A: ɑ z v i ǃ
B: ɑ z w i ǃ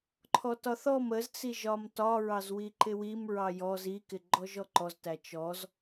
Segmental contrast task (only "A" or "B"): B